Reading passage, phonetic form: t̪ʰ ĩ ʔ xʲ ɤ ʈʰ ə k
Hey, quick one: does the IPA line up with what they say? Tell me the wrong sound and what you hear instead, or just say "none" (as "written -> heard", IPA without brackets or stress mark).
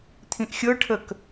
none